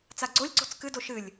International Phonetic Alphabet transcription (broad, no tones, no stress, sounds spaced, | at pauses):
t͡s a ɡ͡ǀ o lʲ ǀ o̤ t͡s k ɨ d o ʃ ɨ lʲ